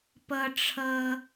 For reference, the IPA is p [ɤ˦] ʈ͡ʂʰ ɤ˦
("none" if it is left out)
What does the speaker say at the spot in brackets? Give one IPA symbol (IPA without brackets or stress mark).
ɤ˦